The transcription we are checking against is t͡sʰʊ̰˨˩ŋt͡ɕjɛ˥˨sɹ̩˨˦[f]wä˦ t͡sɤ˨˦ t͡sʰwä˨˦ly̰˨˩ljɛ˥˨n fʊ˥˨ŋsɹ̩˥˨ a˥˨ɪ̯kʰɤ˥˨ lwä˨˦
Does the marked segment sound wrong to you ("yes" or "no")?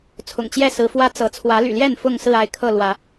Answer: no